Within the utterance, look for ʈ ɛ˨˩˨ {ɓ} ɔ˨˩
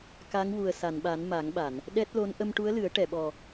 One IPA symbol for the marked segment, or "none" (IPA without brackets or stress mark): ɓ